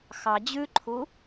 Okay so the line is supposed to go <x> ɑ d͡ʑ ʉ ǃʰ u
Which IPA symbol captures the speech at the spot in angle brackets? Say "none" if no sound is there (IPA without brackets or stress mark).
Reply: x